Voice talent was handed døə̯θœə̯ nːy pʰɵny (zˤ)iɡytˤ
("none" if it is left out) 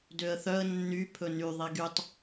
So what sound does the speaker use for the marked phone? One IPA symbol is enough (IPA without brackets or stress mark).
ðˤ